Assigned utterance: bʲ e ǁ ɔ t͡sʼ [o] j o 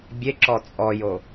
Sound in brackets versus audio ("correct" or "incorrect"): incorrect